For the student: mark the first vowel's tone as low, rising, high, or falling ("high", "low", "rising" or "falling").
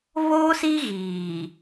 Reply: high